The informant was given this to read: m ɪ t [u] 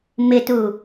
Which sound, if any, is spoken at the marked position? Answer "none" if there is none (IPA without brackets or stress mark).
u